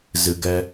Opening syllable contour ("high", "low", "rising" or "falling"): low